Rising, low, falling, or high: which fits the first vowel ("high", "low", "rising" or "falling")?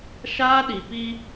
high